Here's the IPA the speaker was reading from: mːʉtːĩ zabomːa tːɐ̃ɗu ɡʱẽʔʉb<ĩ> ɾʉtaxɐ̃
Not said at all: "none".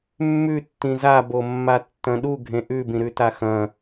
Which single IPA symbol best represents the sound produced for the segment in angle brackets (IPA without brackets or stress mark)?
ĩ